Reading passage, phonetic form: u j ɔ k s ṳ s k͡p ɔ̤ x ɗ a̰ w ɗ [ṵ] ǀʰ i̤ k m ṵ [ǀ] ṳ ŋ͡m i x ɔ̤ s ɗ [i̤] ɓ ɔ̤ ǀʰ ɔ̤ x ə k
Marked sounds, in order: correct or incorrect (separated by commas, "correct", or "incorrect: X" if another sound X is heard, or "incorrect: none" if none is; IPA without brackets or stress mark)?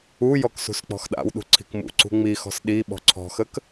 incorrect: ṳ, correct, incorrect: i